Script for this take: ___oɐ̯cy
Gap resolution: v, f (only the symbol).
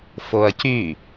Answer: f